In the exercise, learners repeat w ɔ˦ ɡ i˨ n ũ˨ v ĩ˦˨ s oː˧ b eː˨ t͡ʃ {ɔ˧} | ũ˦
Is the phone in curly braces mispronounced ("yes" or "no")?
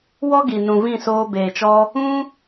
no